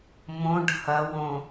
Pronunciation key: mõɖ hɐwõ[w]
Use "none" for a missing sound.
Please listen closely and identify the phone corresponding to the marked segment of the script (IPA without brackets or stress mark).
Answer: none